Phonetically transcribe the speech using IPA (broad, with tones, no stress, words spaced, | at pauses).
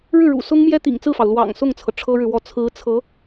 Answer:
ɻɻ̩˥˩ɻṵ˨˩sʊ˥ŋmjɛ˥ t̪ḭ˨˩ŋt͡sɹ̩˥˩fɑ˩ʊ̯ lwɑ̰˨˩ŋsʊ˥˩ŋt͡sʰɤ˩ ʈ͡ʂʰɤ˥ɻɻ̩˨wɔ˥˩ t͡sʰɹ̩˧˥t͡sʰɤ˧˥